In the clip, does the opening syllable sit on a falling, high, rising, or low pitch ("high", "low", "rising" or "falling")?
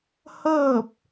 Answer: falling